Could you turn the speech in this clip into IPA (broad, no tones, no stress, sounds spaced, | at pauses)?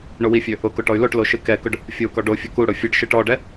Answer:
ɳ o w i fʲ ø | ʊ k o ʈ ɔ y̯ l o ʈ l o ʃ ɨ k ɛ k ʊ ɖ | fʲ o u̯ k ɔ ɖ o fʲ ɔ k u ɽ ʊ fʲ ɨ ɖ ʃ ɨ ʈ ɔ ɖ ɛ